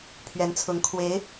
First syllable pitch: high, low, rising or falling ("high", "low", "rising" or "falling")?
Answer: rising